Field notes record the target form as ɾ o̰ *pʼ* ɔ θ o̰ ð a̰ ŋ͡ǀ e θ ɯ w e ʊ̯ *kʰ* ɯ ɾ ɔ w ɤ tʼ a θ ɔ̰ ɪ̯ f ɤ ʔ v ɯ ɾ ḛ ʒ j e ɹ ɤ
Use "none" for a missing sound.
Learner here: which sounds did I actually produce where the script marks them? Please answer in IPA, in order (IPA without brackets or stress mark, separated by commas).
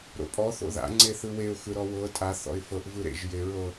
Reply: pʼ, x